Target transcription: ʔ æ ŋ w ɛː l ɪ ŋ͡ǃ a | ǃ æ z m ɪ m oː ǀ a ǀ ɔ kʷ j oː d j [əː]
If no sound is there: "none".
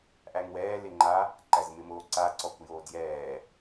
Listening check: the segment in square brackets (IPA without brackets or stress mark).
ɛː